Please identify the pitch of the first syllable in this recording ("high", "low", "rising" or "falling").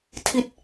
falling